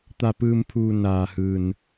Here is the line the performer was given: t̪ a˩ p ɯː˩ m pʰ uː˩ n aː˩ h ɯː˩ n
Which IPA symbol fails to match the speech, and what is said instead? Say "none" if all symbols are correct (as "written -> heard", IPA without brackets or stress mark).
none